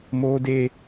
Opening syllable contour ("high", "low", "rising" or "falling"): high